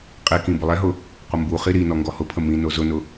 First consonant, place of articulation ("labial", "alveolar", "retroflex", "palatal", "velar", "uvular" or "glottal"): uvular